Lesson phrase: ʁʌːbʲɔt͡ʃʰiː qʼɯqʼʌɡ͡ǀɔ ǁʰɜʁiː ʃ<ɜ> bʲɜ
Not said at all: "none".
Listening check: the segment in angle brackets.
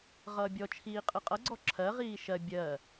ɜ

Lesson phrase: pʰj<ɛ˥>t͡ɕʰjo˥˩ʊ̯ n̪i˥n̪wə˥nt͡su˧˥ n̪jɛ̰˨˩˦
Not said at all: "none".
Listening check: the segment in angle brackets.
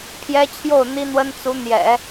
ɛ˥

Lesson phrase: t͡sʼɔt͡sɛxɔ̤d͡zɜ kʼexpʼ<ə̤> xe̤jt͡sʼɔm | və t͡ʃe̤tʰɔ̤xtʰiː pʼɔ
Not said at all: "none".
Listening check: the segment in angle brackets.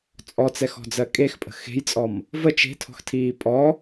ə̤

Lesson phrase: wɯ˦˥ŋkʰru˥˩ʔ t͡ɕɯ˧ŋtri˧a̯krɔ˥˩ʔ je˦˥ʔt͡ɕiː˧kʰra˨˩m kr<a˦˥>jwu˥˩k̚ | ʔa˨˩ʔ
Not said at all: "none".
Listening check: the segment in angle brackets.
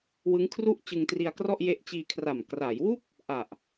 a˩˦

